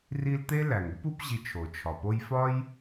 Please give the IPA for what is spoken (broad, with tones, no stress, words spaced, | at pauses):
ri˦lt̪e˥ læ˩ŋu˥pu˦pʑi˨ t͡ʃʰo˩t͡ʃʰɒ˩po˦j fɒ˥j